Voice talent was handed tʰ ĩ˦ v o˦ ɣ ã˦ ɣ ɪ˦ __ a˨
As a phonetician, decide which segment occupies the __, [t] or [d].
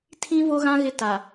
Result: t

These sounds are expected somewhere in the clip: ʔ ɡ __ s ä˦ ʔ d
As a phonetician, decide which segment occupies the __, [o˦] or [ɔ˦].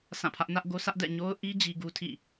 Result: o˦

